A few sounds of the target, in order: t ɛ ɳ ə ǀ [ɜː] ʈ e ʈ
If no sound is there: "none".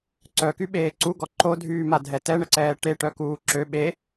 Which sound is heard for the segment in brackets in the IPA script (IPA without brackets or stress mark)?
ɛː